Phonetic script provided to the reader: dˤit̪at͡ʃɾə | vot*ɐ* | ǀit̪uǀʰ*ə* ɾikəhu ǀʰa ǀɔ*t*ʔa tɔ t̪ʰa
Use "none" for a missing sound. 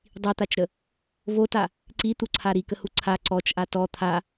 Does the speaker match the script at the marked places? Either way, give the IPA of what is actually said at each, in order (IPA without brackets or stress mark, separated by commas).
a, a, t͡ʃ